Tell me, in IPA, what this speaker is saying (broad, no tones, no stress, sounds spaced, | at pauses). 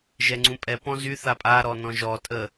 ʒ ɛ ŋ͡ǀ ũ pʼ ɛ p ɔ̃ z y θ a pʼ a ɾ ɔ n ɔ̃ ʒ ɔ tʼ ə